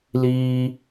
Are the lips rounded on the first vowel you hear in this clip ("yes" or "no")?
no